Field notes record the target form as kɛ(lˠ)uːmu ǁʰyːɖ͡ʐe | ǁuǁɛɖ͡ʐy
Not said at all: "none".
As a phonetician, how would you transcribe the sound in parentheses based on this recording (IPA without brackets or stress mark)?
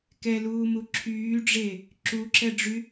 l